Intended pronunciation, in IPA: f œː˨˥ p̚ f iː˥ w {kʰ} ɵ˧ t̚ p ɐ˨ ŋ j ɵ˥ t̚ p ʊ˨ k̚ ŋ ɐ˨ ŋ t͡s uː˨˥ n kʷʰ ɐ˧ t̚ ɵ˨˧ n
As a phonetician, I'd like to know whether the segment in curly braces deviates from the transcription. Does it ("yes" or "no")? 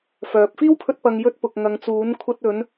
yes